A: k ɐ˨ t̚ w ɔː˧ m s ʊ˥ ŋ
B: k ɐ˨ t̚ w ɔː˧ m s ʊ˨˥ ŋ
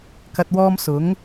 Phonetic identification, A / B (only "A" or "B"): B